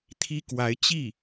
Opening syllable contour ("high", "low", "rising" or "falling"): high